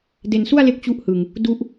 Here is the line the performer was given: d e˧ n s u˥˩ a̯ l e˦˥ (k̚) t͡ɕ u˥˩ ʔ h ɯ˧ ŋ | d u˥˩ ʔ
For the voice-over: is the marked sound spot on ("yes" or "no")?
yes